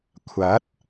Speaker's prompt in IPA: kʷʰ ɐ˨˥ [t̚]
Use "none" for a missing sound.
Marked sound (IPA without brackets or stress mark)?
t̚